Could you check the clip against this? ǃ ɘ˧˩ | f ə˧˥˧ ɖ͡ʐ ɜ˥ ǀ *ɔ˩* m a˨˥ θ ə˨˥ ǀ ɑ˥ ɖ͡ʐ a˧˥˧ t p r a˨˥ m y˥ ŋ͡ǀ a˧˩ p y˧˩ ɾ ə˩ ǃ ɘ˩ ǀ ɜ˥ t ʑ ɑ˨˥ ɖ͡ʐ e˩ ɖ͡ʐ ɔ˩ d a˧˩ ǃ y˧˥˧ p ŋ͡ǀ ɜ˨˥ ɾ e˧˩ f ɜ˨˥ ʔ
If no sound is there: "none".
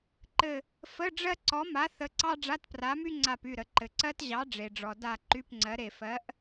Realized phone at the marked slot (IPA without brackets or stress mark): ɔ˨˥